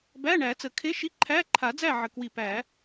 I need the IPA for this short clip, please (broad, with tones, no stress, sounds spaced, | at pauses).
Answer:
b æ˧˥˧ ɳ æ˨˩˦ t͡s ə˨˩˦ kʰ e˧˥˧ ʃ i˧˥˧ ǃʰ æ˧˥˧ ǃʰ a˨˩˦ d͡z æ˥˨ ʕ ə˨˩ k w i˨˩ p æ˨˩˦